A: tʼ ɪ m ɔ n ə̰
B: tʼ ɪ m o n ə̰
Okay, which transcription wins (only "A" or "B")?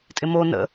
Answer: B